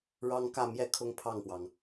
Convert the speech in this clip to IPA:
ɻɑ˥ŋkä˥˧mjɛ˥˧ kʰʊ˥˧ŋpʰɑ˥˩ŋpwɑ˩ŋ

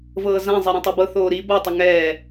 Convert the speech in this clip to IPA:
vɤːzãzˤɛ ɾũtˤibɤ θoːɾi bɤ tˤuŋɛː

